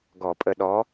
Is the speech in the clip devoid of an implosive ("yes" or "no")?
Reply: no